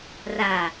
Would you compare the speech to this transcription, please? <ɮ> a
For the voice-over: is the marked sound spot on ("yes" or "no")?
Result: no